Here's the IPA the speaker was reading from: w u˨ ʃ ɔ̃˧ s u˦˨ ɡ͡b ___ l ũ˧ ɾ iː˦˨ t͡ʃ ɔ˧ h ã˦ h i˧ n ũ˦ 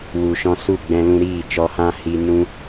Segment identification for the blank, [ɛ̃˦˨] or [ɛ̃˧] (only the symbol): ɛ̃˧